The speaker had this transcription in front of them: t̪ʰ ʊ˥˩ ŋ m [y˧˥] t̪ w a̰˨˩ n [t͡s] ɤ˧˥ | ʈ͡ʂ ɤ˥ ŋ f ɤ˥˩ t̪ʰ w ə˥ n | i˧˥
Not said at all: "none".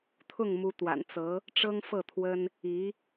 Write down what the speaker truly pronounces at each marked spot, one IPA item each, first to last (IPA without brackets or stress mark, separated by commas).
u˧˥, t͡s